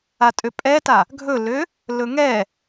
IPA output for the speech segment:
a tʼ ø pʼ ɛ t a | ɡʱ ɵ l ø | l ɵ ŋ ɛ

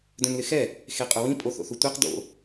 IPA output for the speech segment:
d œ̃ n l ɪ x ɛ | x e qʼ ʊ w ĩ pʼ o θ o̰ θ u tʷ ɛ q d o̰

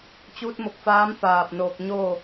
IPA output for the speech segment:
t͡ɕ uː˧˥ t̚ m o˧˩ k̚ f aː˧˥ m f aː˧˩ p̚ n oː˧˩ k̚ ɲ oː˥˨

